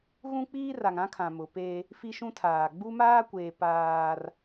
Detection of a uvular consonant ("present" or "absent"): absent